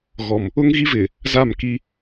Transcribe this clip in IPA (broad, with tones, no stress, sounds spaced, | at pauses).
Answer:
ɣ ɔ˨ m | ʊ˦ ŋ ɣ i˦ v ɪ˨ | z a˦˨ m k i˦